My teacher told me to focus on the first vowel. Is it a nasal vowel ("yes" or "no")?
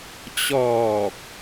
no